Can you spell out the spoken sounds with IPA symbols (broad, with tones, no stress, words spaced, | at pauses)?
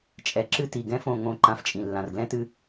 t͡ʃʼɛ˨ǁɨ˦ti˨ ɡɛ̃˦ fõ˦˨ŋõ˦˨ ǃã˧ft͡ʃʼĩ˨ lːã˨rɡlɛ̃˦tɨ˦